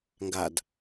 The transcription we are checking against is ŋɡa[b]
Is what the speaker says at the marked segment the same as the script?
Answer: no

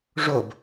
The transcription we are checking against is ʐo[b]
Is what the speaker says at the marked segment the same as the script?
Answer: yes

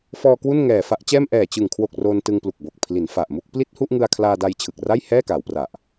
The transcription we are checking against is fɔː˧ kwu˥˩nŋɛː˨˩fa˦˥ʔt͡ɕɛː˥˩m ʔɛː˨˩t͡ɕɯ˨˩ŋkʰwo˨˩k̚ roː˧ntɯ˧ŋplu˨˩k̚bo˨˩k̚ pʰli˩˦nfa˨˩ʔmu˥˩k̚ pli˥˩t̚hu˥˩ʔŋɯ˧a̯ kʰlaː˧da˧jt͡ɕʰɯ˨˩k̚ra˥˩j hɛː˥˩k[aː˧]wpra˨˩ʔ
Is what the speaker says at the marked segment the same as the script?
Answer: no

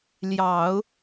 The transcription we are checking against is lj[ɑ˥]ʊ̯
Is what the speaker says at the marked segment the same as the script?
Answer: no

